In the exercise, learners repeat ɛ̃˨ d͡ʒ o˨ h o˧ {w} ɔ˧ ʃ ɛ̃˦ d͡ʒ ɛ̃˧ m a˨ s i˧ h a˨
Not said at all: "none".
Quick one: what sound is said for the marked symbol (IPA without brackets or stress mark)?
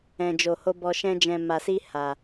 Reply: b